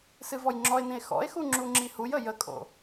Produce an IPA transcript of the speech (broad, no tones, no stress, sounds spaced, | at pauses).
s ɨ v ɔ j ŋ͡ǁ ɔ e̯ n ĩ e̯ x ɔ̰ e̯ x u ŋ͡ǁ u ŋ͡ǁ i h u j ə j ə kʼ o̰